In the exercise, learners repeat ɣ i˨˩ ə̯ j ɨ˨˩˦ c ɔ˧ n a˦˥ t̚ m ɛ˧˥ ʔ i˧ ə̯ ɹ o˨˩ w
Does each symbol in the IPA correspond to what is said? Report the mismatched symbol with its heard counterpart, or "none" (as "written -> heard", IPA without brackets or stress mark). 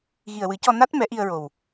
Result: j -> w